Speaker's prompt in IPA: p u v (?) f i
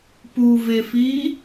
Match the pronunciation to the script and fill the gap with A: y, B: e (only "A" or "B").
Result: B